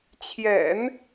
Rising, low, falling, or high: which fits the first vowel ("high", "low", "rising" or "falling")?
low